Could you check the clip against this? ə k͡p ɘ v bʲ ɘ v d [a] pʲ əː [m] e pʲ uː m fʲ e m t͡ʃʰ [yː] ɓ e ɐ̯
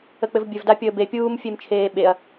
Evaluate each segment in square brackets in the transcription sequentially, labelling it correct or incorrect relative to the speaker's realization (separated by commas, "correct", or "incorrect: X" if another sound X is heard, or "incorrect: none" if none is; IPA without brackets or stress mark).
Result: correct, incorrect: b, incorrect: eː